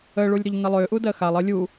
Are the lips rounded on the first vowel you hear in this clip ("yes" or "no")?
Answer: no